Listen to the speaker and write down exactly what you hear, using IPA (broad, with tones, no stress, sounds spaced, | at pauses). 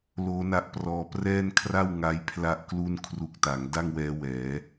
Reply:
l oː˦˥ n a˦˥ ʔ p r ɔː˧ p r ɛː˥˩ n kʰ r a˥˩ w ŋ a˦˥ j pʰ l a˥˩ ʔ k l u˥˩ n kʰ r u˦˥ k̚ t a˩˦ ŋ d a˥˩ ŋ w ɛː˦˥ w ɛː˩˦